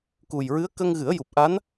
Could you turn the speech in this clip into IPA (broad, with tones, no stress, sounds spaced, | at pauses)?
k u˨˩ j ɹ ɨ˧˥ ə̯ k ə˧ ŋ ɣ ɨ˨˩˦ ə̯ j u˨˩ p̚ ʔ a˧˥ n